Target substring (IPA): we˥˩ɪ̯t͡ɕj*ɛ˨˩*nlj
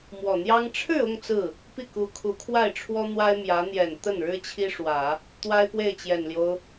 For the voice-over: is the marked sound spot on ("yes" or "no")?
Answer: yes